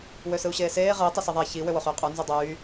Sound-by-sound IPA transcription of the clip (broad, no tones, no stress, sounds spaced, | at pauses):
w ø s ɯ u̯ ɕ eː s eː ʁ ɯ i̯ tˤ ɯ s i ðˤ æ ç i w ø w o χ yː qʼ u n z y dˤ yː